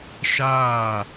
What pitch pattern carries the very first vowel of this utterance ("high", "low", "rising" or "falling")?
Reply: falling